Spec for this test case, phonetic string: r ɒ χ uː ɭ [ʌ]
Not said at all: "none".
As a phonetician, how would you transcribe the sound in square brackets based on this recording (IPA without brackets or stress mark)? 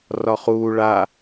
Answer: a